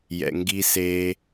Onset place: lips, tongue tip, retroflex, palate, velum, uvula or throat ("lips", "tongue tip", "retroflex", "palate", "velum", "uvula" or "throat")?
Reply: palate